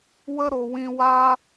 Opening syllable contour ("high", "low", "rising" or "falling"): high